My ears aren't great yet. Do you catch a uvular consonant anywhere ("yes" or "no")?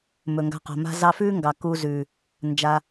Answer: yes